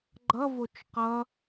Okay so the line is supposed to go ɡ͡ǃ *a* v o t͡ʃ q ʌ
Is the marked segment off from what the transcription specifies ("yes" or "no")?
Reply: yes